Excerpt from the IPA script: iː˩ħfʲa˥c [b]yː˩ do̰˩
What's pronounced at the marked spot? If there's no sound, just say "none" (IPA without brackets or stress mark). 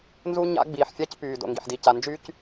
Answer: p